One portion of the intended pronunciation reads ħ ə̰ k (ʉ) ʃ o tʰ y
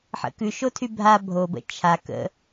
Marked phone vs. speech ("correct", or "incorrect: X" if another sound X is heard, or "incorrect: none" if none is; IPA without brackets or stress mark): correct